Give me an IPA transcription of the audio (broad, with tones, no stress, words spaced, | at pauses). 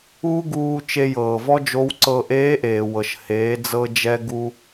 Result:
uː˥ɡuː˧ t͡ʃe˧jɤː˩vɔ˥ d͡ʒo˧˥wǀɤ˧ ʔeː˧˥ʔeː˩wɤ˩ʃ heː˩˧d͡zɤ˧d͡ʒɛ˧ ɡu˧